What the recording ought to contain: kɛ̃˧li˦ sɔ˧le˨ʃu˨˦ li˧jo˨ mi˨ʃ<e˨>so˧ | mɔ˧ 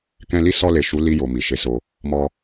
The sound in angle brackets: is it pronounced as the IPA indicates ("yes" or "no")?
no